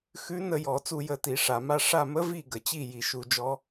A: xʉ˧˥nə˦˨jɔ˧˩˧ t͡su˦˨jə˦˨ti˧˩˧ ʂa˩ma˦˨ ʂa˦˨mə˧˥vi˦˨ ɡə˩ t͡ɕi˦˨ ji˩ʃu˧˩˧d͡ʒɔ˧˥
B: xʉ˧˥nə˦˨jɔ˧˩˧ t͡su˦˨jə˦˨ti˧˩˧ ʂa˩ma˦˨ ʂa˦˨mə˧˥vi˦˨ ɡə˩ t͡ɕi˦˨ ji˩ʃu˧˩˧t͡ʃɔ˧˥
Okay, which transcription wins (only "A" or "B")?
A